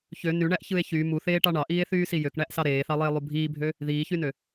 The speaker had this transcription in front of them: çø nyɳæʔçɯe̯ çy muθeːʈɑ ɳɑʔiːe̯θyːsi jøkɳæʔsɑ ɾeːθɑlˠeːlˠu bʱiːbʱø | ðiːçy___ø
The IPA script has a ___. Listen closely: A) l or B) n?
B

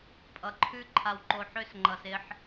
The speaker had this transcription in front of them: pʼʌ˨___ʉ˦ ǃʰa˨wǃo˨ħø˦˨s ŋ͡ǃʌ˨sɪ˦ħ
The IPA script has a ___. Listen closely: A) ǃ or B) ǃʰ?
B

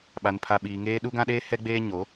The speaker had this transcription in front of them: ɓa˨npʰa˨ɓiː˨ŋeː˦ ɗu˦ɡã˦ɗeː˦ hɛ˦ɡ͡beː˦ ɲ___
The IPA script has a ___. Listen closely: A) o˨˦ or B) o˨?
A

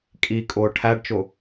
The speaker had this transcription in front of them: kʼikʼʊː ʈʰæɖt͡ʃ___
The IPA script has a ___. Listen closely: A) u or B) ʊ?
B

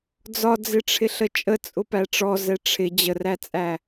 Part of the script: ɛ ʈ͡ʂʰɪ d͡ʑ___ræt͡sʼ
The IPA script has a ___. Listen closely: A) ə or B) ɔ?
A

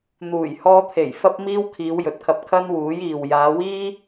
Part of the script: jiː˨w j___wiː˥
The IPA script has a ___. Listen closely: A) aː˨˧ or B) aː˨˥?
A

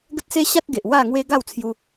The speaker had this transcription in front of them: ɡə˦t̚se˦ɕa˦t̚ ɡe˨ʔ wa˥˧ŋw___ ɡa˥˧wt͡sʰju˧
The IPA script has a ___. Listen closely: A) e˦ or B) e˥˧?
A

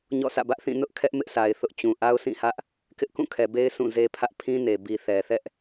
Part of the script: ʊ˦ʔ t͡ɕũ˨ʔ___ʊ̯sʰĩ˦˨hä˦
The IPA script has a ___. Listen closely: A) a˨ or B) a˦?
B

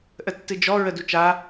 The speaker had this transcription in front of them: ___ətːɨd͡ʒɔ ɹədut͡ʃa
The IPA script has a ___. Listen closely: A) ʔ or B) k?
A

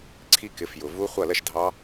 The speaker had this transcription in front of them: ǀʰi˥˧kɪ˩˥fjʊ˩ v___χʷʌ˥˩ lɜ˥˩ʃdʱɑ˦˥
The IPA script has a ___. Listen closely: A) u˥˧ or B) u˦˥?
B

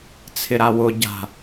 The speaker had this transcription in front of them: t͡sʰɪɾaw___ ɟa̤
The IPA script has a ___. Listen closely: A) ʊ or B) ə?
A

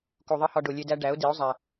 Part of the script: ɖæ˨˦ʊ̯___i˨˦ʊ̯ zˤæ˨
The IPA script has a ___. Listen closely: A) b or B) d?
B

